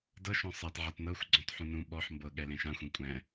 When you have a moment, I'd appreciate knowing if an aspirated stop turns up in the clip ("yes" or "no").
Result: no